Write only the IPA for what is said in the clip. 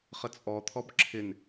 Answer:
χ ə t͡sʼ ɔ t̪ʰ ɔ b ǁʰ ɪ n

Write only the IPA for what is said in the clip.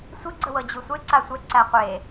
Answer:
sʷ ə ɡ͡ǀ ə w ɤ d͡ʑ u sʷ e ǀ a sʷ ɛ ǀ æ qʷ e

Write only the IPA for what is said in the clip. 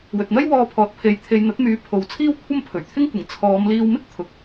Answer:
w ɵ˨ t̚ n̪ ɐ˥ j w ɔː˧ pʰ ɔː˨˥ t̚ pʰ e˨˥ j t̪ʰ e˨ j n̪ ɐ˨˥ t̚ m yː˨˥ pʰ o˨˧ w t͡sʰ iː˥ w kʷʰ ɐ˥ m pʰ ɵ˨˩ ɥ t̪ʰ ɪ˥ ŋ kʷ ɪ˨˩ ŋ t͡sʰ ɔː˨˧ m l iː˧ w m ɪ˥ k̚ t̪ʰ ʊ˨˥ k̚

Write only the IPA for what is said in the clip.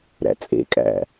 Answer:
ɾ æ̰ t͡sʼ ḛ kʼ æ̰

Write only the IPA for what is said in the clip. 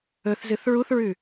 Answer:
ɵ θ z ɨ θ ɹ u θ ɹ ʉ

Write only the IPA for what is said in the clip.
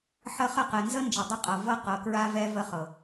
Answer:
ħ ə˦ χ ə˦˨ q ɛ˨ n z ə˦ n d͡ʒ ə˨ dˤ ə˦˨ qʼ ɤ˨ v ɤ˦ q ɤ˨ k ɹ a˦ v ɛ˦ v ə˦ χ ɤ˨

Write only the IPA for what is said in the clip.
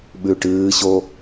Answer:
ɓ ʉ ʈ ɨː ɕ o

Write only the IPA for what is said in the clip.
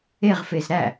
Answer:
e ʁ f e z ɾ æ

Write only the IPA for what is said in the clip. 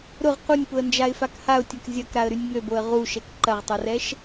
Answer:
ɾ ʊ ʁ q u nʲ p ʊ ə̯ n d͡ʒ a ɪ̯ f a k h a ʊ̯ tʲ ɐ k zʲ ɐ k ɾ a ə̯ ɾ y nʲ ŋ ø b o ə̯ ʁ u ʃ ɛ k ǃ ɐ ʁ tˤ o r ɛ ʃ

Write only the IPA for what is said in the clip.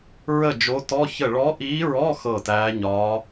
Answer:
ɹ ə˥˩ d͡ʒ o˧˥ t ɔ˧˥˧ ç ə˥˩ ɭ ɔ˧˥ ʔ iː˧˥ ɹ ɔ˧˥˧ x ɤ˥˩ t æː˧˥ ɲ ɒ˧˥

